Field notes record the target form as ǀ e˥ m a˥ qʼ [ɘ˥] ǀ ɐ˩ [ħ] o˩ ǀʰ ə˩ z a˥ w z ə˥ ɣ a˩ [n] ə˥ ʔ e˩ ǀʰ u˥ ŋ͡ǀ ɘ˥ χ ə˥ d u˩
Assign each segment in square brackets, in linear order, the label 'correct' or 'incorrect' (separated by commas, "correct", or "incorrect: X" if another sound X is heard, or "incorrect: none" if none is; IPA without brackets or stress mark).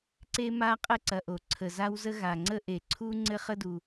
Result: correct, incorrect: ʔ, incorrect: ŋ͡ǀ